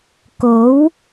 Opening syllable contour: rising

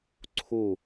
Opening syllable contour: falling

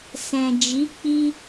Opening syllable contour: low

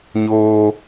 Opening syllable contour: high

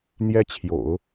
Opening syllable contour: high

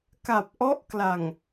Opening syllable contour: low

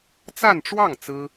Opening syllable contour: falling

